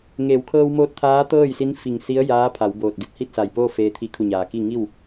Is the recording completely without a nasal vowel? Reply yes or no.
yes